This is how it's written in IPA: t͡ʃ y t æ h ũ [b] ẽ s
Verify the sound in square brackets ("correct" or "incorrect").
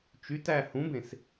correct